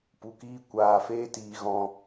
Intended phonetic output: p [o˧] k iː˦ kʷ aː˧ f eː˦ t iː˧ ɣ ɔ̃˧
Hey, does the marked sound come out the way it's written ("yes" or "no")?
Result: no